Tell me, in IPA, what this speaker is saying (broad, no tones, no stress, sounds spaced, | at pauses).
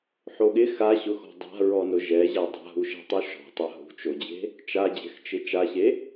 ħ o ɠ ɪ x a ɕ ʊ x ɔ̤ dˤ a̤ ɹ ɔ n ʊ ʒ ɛ ʑ a dˤ a̤ ɦ u ʃ ɛ̤ tˤ u ʃ ɔ̤ tˤ a ɦ ṳ t͡ʃ o d͡ʑ e̤ | t͡ʃ a d͡ʑ ɛ̤ x t͡ʃ ɪ t͡ʃ a ɕ e